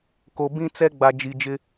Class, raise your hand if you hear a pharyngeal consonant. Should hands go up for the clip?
no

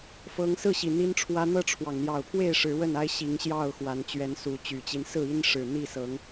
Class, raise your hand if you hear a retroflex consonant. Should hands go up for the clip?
yes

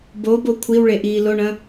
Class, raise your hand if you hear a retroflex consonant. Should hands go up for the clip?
yes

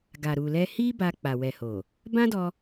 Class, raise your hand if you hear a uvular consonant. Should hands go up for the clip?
no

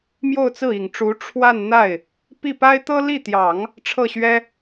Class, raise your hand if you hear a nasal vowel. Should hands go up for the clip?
no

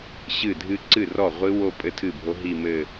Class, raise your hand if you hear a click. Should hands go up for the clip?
yes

